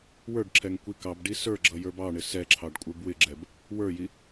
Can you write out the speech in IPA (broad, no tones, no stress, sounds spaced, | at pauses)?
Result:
w ə˞ ɖ ǁʰ ɛ ŋ kʷ i k ɑ b ɖ i s ə˞ ɡ͡ǁ ʌ j ə˞ b ɑ ɳ ɪ s ɛ ǁʰ ɑ ɖ kʷʼ ə˞ b w ɪ ɡ͡ǁ ɛ b | w ə˞ j i